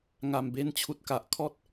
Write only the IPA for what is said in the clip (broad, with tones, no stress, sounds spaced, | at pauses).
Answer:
ŋ a˨˩ m b e˧ n t͡ɕʰ u˨ t̚ k a˨ ʔ kʰ ɔ˦ t̚